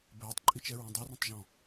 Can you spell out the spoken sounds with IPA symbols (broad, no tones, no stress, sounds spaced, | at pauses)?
b ɛː tˤ ǃʼ i t͡ʃ ɛ ɹ ũ dˤ e r ẽ tˤ ʒ ɔ̃